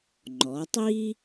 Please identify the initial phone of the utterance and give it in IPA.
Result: ŋ͡ǃ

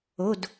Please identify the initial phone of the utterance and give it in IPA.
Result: o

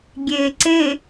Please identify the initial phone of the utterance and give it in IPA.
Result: ɡʲ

